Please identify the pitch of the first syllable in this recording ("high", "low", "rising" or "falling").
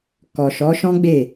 low